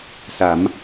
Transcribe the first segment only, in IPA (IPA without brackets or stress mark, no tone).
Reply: s